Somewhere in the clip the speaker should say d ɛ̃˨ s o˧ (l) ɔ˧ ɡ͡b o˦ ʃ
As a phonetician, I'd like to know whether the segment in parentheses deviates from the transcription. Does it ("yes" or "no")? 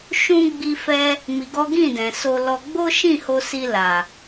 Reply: no